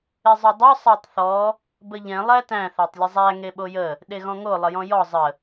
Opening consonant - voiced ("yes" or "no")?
yes